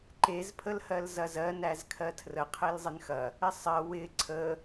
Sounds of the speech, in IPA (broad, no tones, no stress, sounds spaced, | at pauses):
ǃ e z pʰ ə l h ɜ l z ɐ z ɜ n æ z kʰ ɜ tʰ r ə qʰ e l zˤ ɪ n x ɐ | ɪ sˤ ɜ w ɪ ǀʰ ə